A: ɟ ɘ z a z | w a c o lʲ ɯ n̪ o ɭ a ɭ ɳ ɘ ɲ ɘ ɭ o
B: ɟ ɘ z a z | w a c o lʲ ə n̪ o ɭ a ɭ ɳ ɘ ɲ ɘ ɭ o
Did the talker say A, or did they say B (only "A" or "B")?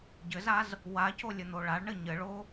B